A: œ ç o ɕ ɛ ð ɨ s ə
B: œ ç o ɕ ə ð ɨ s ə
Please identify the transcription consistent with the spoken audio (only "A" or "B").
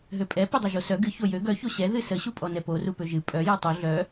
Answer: A